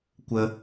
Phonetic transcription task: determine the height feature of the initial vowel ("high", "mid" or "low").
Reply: mid